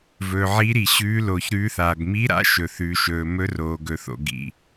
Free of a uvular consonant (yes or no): yes